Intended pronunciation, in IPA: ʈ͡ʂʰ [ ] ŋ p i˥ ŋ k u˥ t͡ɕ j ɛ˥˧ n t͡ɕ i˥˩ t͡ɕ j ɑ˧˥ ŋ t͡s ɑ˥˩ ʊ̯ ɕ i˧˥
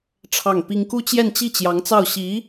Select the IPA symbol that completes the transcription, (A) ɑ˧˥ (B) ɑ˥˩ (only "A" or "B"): B